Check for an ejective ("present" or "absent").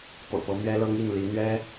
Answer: absent